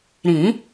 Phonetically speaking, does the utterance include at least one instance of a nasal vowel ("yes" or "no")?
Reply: yes